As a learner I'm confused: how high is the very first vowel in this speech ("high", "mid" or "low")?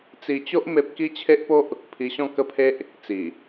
high